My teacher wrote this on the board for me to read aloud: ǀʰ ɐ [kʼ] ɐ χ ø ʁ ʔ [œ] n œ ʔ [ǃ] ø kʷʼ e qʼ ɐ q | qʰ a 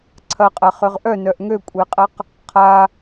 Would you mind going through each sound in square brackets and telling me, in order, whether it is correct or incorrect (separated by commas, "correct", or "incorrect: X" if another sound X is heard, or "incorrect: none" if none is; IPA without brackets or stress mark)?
incorrect: qʼ, correct, incorrect: ŋ